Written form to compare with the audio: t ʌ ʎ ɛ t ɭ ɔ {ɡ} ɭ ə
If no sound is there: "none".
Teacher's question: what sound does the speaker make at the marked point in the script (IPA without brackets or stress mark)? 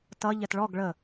ɡ